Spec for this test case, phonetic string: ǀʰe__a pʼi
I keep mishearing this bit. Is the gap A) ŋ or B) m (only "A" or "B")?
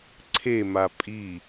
B